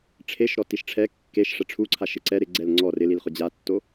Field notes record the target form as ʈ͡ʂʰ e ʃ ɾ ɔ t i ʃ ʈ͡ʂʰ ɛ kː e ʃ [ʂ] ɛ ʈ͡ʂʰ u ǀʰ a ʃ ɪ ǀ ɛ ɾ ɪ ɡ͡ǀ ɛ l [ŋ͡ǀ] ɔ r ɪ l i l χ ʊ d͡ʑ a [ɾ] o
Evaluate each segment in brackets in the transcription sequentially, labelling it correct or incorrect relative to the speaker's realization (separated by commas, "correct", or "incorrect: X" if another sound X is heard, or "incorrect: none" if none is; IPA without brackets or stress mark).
correct, correct, incorrect: tː